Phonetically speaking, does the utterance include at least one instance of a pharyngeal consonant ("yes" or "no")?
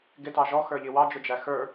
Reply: no